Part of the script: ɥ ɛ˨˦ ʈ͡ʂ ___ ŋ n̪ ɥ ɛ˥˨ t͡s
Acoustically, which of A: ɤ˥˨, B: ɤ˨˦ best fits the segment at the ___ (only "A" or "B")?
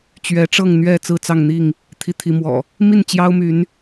A